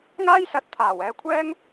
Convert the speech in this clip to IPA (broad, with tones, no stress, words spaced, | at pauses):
ŋaː˥jsɐ˨˥t̚ t̪ʰaː˨˩w ɛː˧kʷʰɛː˥ŋ